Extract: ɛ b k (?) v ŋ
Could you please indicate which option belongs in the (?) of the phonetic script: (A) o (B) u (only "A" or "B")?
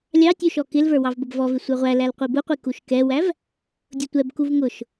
B